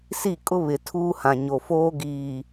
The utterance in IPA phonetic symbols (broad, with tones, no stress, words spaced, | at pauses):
si˦˨kʼʊ˦ βɪ˨tʰuː˦hã˨ ɲo˨foː˦ ɡiː˨